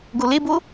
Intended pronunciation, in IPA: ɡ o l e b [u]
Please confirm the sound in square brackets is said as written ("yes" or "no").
no